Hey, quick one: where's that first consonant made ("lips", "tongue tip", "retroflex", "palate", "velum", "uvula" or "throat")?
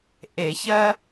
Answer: throat